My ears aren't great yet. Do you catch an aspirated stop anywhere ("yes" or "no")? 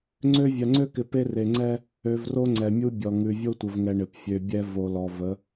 no